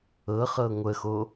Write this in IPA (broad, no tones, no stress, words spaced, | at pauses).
ɤχɤ ŋʷəxo